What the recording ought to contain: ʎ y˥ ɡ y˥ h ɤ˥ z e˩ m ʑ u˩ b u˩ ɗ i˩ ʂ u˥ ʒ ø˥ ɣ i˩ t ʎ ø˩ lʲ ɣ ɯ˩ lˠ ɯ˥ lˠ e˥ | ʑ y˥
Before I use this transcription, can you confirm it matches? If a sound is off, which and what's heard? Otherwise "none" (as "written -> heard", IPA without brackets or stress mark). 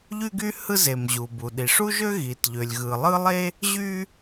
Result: ɤ˥ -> ɯ˥